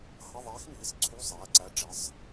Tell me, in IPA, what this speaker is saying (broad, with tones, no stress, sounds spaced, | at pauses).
h ʌ˧˥˧ ðˤ ɛː˧˥ x m iː˩˧˩ s ǀʰ u˧˥˧ sˤ ɛː˩˧˩ ǀ æ˧˥ ɖ͡ʐ ɪ˩˧˩ sˤ